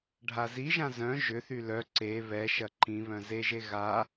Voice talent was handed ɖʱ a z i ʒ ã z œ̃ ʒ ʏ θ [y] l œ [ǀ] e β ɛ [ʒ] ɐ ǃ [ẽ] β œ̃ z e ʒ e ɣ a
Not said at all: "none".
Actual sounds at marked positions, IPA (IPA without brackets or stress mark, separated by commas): y, ǀ, ʃ, ĩ